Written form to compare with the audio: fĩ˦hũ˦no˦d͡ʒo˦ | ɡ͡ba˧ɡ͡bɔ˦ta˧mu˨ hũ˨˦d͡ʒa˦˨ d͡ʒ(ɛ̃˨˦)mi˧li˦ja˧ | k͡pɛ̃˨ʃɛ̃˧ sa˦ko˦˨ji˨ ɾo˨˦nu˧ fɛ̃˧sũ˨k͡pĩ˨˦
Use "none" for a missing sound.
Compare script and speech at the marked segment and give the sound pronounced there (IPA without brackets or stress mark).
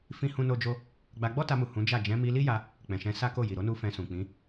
ɛ̃˨˦